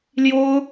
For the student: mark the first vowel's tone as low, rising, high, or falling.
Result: high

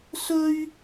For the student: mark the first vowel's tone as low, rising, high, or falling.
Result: high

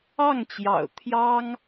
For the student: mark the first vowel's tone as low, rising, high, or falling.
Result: falling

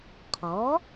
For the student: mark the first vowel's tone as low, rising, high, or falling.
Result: rising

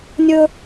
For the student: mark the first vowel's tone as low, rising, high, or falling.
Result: high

